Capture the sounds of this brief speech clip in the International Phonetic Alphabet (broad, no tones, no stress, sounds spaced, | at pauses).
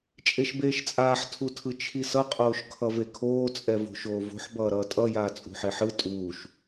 t͡ʃʼ e ʃ b eː ʃ t͡sʼ aː ħ tʰ u tʰ ɯ t͡ʃʰ i s ʌ qʼ oː ʃ kʰ ʌ v e kʰ oː t͡sʼ ɛ v o̤ ʃ oː v o̤ ħ b ʌː ɾ ʌː tʼ ʌ j aː t͡sʼ ṳ ħ e ħ ɯ tʼ uː ʃ